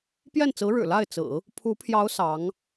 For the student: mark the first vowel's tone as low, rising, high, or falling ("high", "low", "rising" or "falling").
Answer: falling